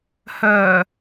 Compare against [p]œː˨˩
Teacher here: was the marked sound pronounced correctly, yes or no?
no